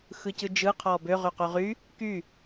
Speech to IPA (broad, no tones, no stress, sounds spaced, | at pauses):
x ɯ c ɯ d͡ʒ ɯ qʰ ɔ b ø ʁ y q y ʁ y | k y